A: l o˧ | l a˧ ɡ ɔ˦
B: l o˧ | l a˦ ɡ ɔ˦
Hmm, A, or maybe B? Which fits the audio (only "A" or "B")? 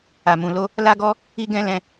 B